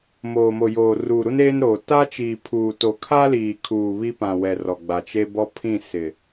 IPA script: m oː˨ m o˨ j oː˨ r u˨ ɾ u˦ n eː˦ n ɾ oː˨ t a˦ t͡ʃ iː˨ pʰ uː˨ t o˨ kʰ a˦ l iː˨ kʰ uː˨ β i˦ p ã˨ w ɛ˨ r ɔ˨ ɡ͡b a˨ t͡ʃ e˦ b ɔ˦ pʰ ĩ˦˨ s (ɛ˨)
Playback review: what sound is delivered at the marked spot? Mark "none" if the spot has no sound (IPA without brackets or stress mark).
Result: ɪ˨